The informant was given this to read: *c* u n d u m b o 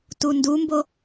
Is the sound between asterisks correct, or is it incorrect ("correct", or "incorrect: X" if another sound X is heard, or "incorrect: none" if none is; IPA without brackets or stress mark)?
incorrect: t